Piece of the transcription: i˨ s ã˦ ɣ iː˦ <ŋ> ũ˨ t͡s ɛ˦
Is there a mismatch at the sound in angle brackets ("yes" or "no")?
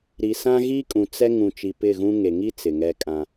yes